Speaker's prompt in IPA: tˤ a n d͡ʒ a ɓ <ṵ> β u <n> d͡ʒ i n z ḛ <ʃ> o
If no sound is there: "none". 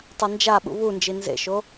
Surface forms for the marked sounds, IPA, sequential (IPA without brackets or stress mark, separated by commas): ṵ, n, ʃ